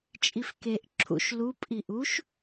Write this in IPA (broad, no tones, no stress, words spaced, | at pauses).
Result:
t͡ʃʼifkeʔ ǁʰṵʃ lu pʼiʔuʃ